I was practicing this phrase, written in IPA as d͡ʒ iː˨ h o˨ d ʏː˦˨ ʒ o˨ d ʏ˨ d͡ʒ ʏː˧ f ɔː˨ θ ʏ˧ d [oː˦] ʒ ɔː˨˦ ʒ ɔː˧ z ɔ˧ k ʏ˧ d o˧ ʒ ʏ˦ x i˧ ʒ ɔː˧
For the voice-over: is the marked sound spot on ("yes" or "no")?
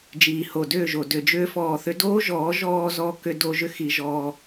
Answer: yes